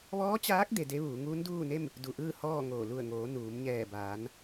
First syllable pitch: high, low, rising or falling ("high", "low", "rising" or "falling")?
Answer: rising